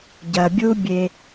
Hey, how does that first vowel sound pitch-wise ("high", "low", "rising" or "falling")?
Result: low